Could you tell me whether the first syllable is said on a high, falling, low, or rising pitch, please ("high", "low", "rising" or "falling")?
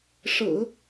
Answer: low